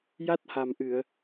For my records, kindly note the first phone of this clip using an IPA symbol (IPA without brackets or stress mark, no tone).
j